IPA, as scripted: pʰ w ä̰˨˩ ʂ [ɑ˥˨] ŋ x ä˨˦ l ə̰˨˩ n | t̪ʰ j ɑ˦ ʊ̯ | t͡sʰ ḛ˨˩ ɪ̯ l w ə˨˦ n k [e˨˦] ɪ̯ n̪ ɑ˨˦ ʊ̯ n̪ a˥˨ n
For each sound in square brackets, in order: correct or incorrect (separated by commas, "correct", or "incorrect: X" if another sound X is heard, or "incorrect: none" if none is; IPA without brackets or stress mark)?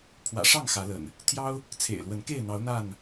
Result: correct, incorrect: e˥˨